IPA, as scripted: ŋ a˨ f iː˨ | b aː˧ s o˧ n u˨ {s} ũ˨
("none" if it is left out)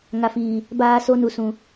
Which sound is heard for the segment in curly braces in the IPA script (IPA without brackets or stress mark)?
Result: s